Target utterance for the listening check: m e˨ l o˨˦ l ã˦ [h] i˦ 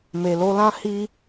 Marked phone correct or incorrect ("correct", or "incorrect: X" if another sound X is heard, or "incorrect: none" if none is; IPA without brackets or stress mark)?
correct